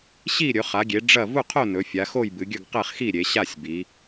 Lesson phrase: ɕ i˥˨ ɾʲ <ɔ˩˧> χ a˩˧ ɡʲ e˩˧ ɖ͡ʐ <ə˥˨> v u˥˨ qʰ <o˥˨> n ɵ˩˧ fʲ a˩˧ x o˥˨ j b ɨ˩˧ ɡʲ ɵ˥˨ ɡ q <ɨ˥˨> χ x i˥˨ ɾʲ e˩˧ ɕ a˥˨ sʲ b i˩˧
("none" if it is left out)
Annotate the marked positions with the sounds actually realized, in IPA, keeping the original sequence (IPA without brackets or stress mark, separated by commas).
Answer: ɵ˩˧, ɐ˥˨, o˥˨, e˥˨